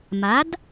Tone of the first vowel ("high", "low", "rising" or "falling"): rising